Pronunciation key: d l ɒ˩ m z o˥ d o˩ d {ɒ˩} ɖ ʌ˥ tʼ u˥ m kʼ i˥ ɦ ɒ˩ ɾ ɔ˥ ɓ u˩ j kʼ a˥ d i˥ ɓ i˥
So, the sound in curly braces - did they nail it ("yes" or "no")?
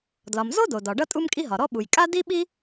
yes